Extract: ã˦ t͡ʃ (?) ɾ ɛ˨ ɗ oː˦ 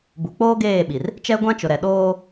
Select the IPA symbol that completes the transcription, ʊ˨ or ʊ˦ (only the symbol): ʊ˨